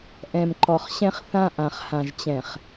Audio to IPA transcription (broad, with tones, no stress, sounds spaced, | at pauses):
ʔ ɛ̃˨ m ǃ ɔ˨ χ ɕ ɛ̃˦ χ θ ã˦ ʔ ã˨ χ h ã˨ ʒ t͡ɕ ɛ̃˨ χ